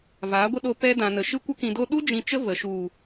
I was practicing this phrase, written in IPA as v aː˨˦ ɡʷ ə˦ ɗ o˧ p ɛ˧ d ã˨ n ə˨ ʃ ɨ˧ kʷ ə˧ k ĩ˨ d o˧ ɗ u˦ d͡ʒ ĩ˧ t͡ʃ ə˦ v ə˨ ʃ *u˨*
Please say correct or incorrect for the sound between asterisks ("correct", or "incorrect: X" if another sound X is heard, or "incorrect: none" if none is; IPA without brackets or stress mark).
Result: correct